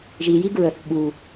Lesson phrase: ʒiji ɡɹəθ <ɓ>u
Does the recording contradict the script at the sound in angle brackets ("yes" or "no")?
no